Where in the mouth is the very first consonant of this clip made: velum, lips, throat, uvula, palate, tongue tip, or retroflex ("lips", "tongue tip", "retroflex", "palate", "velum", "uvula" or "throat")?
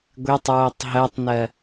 velum